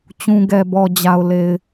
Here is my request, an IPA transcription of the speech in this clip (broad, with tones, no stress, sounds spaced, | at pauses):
t͡ɕ ũ˨ ɡ ɛ˨ b ɔ˨ d͡ʑ a˨ ʊ̯ l e˨ ɪ̯